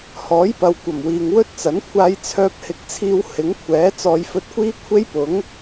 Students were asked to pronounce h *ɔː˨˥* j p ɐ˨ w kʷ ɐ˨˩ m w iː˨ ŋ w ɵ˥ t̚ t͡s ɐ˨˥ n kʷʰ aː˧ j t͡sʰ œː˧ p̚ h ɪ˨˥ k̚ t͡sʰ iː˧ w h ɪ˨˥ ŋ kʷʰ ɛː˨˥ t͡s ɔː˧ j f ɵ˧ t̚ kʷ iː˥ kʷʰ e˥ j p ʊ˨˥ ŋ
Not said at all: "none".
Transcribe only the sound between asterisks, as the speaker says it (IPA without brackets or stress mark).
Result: ɔː˨˥